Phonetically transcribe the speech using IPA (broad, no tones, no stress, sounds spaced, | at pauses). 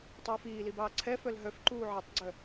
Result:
tˤ uː f iː l i b ɑː ǀʰ ɛ f œ l ɦ œ f ǃ uː ʕ ɛ tˤ ɡ͡ǀ œ